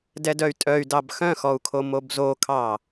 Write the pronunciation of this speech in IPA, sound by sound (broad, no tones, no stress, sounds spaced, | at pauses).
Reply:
d ɛ d œ y̯ tʼ œ y̯ d ɑ b x œ̃ x ɔ u̯ kʰ o m o b z o kʰ ɑ